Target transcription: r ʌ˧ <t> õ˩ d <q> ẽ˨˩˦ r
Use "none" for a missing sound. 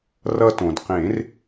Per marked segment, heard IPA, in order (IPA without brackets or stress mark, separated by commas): t, q